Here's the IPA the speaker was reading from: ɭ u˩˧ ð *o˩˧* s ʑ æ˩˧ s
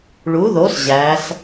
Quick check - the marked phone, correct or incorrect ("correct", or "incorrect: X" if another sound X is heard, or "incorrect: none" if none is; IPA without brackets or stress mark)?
correct